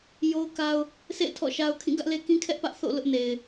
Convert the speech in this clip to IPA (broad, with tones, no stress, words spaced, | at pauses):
jo˦ʊ̯ka˦ʊ̯ | sʰḛ˦˨ɪ̯ tʰɔ̰˦˨ʃa˦ʊ̯ kʰĩ˦˨ɡä˦ʔle˦ kĩ˦kʰɛ˦ʔpä˦ʔ θo̰˦˨ lʊ˦ʔne˨ɪ̯